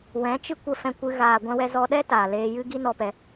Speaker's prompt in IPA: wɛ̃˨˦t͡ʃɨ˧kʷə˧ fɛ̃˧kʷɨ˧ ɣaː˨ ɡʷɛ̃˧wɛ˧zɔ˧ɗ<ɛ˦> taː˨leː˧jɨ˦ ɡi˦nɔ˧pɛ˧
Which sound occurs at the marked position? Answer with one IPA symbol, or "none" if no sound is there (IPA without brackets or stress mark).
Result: ɛ˦